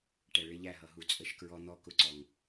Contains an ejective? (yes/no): yes